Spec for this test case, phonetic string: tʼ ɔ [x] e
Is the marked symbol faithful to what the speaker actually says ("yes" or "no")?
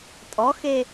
yes